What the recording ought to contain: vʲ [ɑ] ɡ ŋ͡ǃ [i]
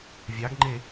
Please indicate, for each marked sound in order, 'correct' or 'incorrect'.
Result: correct, incorrect: e

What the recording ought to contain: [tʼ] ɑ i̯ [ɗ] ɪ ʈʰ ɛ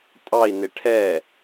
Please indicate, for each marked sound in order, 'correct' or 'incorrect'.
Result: correct, incorrect: n

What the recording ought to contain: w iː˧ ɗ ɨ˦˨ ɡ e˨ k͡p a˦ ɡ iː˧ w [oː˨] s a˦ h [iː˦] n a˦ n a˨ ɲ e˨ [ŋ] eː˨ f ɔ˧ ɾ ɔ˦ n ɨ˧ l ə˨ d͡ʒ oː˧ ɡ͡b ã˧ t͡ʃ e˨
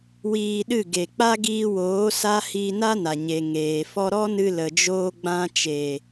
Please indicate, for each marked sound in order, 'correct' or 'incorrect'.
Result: incorrect: oː˨˦, incorrect: iː˧, correct

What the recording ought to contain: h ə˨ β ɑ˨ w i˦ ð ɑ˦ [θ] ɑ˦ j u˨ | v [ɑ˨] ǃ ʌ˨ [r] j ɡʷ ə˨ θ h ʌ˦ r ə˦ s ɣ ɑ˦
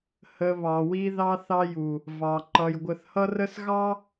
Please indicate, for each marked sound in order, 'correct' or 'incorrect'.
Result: correct, correct, incorrect: none

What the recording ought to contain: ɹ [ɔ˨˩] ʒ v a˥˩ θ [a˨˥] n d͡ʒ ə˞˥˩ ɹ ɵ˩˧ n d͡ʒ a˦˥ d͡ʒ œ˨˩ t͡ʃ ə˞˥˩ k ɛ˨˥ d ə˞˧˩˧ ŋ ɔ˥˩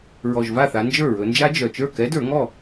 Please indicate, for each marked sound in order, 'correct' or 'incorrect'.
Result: correct, incorrect: a˩˧

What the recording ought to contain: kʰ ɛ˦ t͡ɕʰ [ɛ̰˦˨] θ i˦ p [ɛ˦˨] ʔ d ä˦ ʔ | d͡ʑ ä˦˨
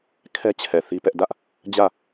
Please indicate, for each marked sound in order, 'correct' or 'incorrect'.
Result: incorrect: ɛ˨, incorrect: ɛ˦

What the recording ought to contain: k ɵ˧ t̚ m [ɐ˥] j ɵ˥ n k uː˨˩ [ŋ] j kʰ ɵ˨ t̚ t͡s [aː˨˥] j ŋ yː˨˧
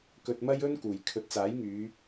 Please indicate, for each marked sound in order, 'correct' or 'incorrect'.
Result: correct, incorrect: none, correct

